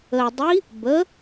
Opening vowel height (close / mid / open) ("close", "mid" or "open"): mid